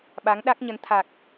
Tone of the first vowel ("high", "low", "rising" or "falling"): rising